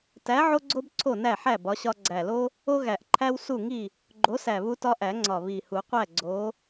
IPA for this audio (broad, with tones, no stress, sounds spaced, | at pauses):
t æ˨˥ ʕ o˦ ɡ͡ǀ o˦ b ǀʰ o˥˨ n æ˥˨ ħ æ˥˨ b ɒ˨˥ ɕ ɒ˦ ɡ͡ǀ æ˨˩ l o˦ | o˦ ɣ æ˨˩ ʔ ǃʰ æ˦ w s u˥˨ ŋ i˥˨ | ɡ͡ǃ o˨˥ s æ˨˩ β u˦ t ɒ˦ ʔ æ˨˩˦ ŋ͡ǀ ɒ˨˩ β i˨˩ h u˨˩˦ qʷ æ˥˨ ɡ͡ǀ o˨˥